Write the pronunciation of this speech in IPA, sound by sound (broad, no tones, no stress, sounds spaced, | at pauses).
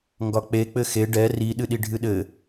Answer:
ŋ ɡ ɒ k͡p e k͡p ɘ x e ɖ ɛ r i ɗ ɨ ɗ i ɖʱ ɨ ɗ ɘ